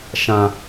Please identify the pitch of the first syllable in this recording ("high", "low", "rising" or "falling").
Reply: high